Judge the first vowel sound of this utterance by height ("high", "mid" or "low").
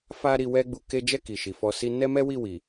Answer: low